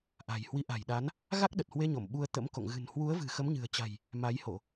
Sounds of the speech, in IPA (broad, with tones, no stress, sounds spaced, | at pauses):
ʔ a̤˨˩ j h w i˨˦ ʔ a̤˨˩ j ɗ a˨˦ n | ɣ a˦˥ k̚ ɗ ə˨˩ t̚ h w e˧ ɲ o˧˩ m ɓ u˧ ə̯ t̪ ə̰˧˥ m k o̰˧˨ ŋ ɣ ɨ̤˨˩ n h w u˨˦ ə̯ v ɨ̤˨˩ x ə˨˦ m ɲ ɨ̤˨˩ ə̯ t͡ɕ a̤˨˩ j | m a˨˦ j h o˧˩˨